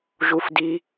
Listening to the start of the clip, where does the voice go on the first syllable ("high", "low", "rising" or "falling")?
low